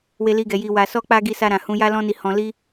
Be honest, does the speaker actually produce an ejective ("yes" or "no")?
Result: no